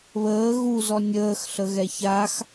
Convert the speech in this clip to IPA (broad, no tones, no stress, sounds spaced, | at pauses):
β əː ɣ u z ɔ nʲ əː x ɬ ə ɣ ɛ ç a x